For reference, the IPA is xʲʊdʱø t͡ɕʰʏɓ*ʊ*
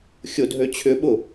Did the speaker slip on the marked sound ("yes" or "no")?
no